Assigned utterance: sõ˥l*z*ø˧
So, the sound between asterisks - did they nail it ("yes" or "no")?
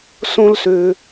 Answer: no